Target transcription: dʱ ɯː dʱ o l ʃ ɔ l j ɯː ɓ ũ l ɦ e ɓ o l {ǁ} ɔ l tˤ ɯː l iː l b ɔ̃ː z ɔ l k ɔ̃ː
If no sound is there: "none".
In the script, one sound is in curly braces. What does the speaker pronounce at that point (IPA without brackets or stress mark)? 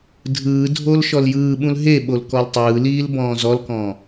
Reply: k